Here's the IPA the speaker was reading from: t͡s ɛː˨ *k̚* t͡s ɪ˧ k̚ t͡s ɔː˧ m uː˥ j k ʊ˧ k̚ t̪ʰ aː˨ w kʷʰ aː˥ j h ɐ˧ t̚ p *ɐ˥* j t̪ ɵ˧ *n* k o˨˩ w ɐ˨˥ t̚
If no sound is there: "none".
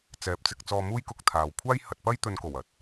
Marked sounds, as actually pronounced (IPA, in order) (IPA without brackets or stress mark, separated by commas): p̚, ɐ˥, n